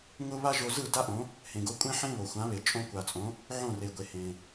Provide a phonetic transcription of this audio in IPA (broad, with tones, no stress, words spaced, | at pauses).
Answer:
ŋʊ˥ βa˥ʒo˧zɯ˥˩ da˥ʔõ˩˥ | hẽ˩ɡo˧kʷʼẽ˥ħẽ˥ βo˩xʷã˩˥βe˩ t͡ʃʼõ˧kʷa˩t͡sʼõ˩˥ | ʕõ˥˩re˩ɡʷe˩ hẽ˩